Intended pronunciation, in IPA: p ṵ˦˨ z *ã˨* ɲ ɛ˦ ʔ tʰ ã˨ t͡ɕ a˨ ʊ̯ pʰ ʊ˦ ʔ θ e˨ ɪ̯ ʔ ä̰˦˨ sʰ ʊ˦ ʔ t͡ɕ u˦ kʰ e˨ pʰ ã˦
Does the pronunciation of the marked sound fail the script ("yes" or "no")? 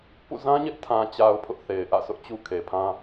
yes